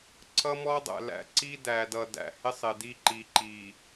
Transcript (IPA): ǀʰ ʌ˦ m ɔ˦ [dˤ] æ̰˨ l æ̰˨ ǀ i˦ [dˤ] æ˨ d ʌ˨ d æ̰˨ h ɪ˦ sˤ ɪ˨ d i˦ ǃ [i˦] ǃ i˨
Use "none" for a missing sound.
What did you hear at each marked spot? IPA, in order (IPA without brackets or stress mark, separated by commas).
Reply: dˤ, d, i˨